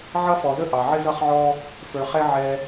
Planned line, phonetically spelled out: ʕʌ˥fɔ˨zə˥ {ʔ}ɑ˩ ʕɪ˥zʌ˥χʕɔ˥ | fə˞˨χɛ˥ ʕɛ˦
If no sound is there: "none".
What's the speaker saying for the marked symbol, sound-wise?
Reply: ʔ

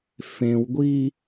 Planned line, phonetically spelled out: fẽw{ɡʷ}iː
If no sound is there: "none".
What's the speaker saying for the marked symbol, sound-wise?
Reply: ɡʷ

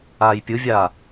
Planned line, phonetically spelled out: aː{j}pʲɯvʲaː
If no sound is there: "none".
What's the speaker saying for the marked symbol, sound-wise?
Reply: j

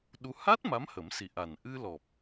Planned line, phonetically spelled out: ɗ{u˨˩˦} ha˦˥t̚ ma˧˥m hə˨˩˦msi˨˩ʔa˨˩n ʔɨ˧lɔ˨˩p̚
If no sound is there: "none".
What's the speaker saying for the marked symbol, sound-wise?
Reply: u˧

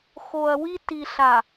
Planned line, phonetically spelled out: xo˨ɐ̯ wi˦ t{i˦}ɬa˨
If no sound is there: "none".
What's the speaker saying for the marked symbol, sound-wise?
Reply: i˨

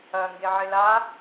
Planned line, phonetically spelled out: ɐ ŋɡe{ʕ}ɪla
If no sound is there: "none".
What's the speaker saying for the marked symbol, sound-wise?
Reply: ʕ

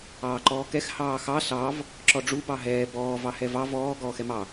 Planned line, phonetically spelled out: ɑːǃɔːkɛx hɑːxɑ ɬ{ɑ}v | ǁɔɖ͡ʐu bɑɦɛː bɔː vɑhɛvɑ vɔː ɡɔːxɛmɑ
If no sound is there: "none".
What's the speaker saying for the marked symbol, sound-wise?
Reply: ɑ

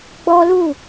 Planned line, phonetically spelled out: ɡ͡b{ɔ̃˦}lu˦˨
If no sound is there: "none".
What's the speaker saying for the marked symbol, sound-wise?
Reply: ɔ˦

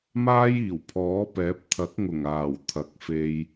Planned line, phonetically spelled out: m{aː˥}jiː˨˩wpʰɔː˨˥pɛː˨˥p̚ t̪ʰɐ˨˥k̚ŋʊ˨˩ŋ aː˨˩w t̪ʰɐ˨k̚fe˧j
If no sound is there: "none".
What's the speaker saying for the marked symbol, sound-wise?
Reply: aː˥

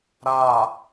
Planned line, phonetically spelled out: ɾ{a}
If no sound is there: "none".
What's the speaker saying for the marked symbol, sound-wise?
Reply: a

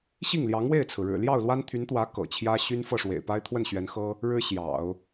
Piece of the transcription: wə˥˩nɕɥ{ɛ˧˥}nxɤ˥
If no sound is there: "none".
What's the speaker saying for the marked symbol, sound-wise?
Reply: ɛ˧˥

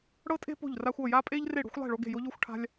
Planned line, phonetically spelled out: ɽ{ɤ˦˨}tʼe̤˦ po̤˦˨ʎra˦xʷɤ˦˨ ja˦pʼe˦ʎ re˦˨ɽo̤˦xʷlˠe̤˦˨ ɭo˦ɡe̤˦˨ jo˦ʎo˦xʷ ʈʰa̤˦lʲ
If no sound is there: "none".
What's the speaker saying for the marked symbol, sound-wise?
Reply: ɤ˦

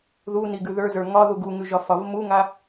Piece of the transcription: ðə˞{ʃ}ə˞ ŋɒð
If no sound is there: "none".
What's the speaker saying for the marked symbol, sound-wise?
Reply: z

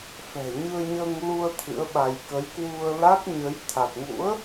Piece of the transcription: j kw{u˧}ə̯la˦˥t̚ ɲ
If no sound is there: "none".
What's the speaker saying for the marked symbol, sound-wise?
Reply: u˧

